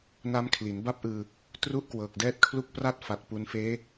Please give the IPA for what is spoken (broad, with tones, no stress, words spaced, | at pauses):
na˦˥mkʰli˩˦nba˥˩p̚ʔɯː˧ | tru˥˩ʔkwɤː˨˩k̚dɛː˥˩t̚kʰlu˥˩k̚ pra˥˩t̚fa˨˩t̚ pu˧nfeː˦˥